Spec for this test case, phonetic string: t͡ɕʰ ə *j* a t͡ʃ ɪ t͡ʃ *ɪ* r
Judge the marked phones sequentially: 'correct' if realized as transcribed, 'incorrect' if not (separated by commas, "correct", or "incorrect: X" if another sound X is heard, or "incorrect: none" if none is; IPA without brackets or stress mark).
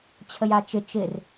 correct, correct